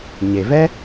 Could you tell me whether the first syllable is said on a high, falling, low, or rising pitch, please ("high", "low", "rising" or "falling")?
low